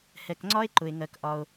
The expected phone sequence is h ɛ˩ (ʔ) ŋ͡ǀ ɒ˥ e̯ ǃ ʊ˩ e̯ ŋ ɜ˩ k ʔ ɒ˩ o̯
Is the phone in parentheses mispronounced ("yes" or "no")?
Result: yes